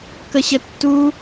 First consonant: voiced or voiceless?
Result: voiceless